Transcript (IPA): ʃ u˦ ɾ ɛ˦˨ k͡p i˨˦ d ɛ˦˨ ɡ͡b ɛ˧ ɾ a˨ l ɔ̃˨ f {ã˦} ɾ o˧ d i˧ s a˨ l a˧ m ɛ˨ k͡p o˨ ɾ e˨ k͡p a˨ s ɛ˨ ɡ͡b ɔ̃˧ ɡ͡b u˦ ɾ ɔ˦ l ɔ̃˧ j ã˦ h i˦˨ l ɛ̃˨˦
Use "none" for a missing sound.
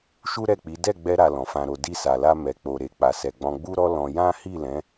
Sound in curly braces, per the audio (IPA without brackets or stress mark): ã˧